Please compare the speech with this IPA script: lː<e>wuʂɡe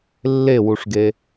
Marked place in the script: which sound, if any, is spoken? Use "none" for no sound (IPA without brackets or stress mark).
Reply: e